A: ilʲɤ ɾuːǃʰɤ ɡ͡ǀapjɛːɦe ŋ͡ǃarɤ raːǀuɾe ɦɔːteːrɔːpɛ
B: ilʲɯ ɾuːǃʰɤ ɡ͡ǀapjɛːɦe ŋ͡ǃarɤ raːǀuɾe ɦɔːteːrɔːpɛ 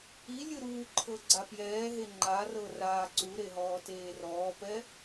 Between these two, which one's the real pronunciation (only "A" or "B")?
B